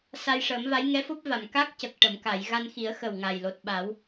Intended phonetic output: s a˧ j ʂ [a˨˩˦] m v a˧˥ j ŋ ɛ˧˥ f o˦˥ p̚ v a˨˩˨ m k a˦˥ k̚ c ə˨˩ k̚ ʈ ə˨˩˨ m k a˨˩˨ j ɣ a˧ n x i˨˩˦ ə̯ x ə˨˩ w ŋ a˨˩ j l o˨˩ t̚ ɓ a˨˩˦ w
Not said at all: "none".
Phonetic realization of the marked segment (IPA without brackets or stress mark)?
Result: ə˨˩˦